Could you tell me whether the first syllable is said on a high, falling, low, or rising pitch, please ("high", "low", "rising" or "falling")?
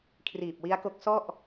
low